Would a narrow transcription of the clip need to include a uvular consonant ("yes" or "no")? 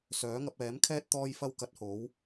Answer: no